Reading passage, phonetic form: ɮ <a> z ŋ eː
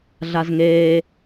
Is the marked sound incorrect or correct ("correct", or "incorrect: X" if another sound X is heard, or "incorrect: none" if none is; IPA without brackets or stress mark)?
correct